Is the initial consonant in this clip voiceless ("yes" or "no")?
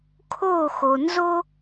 yes